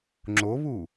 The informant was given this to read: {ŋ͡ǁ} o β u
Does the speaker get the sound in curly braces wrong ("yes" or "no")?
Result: no